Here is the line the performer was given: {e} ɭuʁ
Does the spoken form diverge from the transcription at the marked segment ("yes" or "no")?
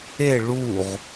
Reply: no